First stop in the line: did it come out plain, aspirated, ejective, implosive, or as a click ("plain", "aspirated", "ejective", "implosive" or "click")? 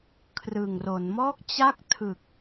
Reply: aspirated